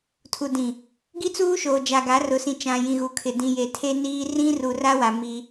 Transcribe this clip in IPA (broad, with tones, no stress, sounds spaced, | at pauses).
tʰ u˨ d ĩ˨ | ɡ i˦ t͡s uː˦ ʃ oː˨ d͡ʒ a˨ ɡ a˨˦ r ʊ˨ s ĩ˨ t͡ʃ ã˨ j ĩ˨ ɣ u˨ kʰ ɪ˨ d ĩ˨ j e˨ tʰ e˦ n iː˦ r ĩ˦ r u˨ r a˦ w a˨ m i˦